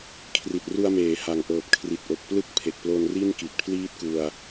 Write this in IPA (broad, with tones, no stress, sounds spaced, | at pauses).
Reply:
kʰ r i˨˩ t̚ r u˧ a̯ m eː˩˦ h a˨˩ ŋ ʔ ɤː˨˩ p̚ kʰ r i˨˩ t̚ ʔ o˨˩ k̚ p l ɯ˥˩ k̚ pʰ e˨˩ k̚ p l o˧ n r i˥˩ n k i˨˩ t̚ pʰ l iː˥˩ t̚ k u˧ a̯